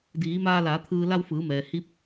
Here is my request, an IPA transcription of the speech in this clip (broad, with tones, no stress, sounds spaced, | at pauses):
d iː˩˧ m aː˧ l aː˩˧ t̪ʰ ɯː˧ l a˧ w f ɯː˩˧ m ɛː˩ h i˧˥ p̚